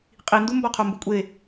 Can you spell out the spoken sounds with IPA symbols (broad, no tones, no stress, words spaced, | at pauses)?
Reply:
qʼindumbɒqʰo mbukʷʼe